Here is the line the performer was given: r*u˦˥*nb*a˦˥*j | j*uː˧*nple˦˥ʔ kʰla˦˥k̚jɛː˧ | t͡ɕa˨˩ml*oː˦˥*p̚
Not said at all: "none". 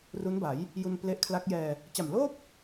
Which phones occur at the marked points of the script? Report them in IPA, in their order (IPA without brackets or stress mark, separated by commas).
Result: u˦˥, a˩˦, u˧, oː˥˩